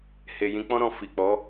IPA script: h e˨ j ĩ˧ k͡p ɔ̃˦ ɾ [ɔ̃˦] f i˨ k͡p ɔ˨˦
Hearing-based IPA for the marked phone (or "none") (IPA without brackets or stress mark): ɔ̃˧